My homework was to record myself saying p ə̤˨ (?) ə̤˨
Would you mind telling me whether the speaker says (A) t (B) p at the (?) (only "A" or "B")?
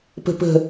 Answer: B